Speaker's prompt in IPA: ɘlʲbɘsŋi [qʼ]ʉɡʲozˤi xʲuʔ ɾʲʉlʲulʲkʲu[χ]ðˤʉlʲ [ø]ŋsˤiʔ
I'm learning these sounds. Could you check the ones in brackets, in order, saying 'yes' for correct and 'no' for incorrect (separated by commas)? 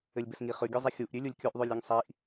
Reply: no, no, no